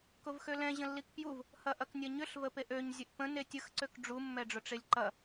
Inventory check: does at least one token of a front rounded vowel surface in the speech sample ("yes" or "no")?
yes